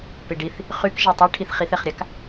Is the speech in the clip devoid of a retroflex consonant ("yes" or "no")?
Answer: no